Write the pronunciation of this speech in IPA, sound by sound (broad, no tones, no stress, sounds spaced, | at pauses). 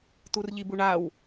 t u r ʎ i b u ɳ a w